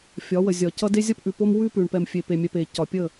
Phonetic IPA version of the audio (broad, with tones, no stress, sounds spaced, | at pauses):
fʲ ɒ˨˦ w ə˨ zʲ ɒ˨ c ʌ˦ d e˦ zʲ ʌ˦ p ʔ ʉ˨ p o˦ m w ʉ˦ p ʉ˨ ɳ p ɛ˨ m fʲ e˨ p e˨ mʲ ɛ˨ p e˨ c ɒ˨ pʲ ə˦˨